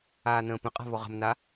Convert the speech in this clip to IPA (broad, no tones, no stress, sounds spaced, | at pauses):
aː n ə̃ː p ə̃ qʼ a̤ β ɔ ʁ ə̤ m n a